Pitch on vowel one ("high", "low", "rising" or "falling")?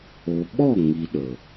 low